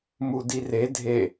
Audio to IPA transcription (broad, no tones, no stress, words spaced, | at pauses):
mudire dʱe